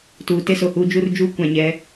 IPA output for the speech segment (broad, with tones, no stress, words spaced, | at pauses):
tuː˨te˦so˨huː˦ d͡ʒu˦rd͡ʒu˦kʷã˨ ɲɛ˨˦